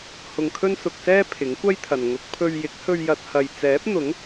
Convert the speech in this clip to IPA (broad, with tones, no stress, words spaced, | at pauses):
hʊ˧ŋkʰɵ˥nsʊ˧k̚sɛː˥ pʰɪ˨˥ŋkʷɐ˥jt̪ʰɐ˨n ŋʊ˨˥k̚pʰɵ˧ɥ jɪ˨˥k̚hɵ˧ɥ jɐ˧t̚ hɐ˧j t͡sɛː˨˥p̚n̪ʊ˨˥ŋ